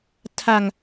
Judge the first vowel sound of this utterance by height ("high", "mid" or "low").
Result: low